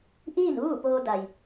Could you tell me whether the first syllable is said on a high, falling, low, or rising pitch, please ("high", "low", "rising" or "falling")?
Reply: falling